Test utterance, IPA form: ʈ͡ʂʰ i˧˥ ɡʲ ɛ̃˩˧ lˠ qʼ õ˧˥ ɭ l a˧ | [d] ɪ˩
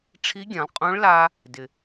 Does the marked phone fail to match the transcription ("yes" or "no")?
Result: no